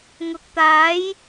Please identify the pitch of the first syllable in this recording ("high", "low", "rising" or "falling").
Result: low